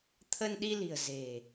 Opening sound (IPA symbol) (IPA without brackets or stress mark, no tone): t̪ʰ